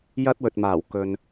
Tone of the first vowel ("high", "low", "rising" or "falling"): high